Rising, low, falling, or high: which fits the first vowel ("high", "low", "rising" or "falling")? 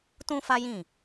high